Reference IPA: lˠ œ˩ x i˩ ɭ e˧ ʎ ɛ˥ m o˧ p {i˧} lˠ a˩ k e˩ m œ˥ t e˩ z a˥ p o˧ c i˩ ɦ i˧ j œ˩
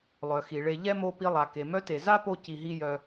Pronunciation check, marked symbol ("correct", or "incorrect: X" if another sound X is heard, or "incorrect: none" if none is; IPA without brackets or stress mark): correct